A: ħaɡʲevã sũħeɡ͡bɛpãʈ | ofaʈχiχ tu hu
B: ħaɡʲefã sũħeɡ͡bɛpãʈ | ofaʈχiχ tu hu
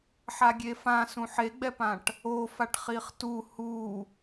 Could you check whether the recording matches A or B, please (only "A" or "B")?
B